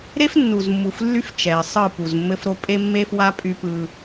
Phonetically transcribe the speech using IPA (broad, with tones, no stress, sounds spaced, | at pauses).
ɾ e˦ f nː u˨ z mː u˨ f lː y˦ f t͡ʃ ɛ˨ ɪ̯ sˤ ɯ˦˨ p u˨ z mː ɘ˦ f ɾ o˦ pʼ e˦ mː e˦ f w a˦ pʼ y˦ p ɯ˦